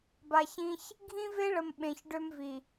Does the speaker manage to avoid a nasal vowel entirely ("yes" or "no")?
no